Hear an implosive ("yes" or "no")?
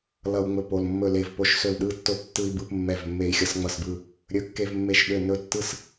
yes